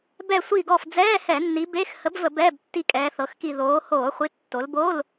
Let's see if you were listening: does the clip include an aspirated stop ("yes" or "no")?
no